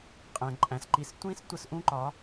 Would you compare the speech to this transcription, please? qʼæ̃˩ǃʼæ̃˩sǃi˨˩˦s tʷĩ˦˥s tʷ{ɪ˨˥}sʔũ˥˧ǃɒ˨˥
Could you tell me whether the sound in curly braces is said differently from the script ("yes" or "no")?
yes